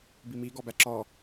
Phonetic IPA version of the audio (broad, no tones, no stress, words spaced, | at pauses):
bimi ɡɔbæǁɔ